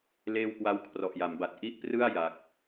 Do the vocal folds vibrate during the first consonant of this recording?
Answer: yes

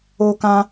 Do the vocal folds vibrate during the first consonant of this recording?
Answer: no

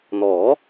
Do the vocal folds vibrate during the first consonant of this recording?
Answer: yes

